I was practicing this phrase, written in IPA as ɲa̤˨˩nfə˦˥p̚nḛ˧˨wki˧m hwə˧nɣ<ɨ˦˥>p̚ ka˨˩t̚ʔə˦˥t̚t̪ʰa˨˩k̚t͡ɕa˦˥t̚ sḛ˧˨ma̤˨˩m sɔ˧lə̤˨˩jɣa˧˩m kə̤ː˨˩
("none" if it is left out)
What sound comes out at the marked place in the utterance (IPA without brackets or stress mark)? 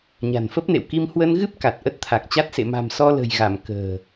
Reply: ɨ˦˥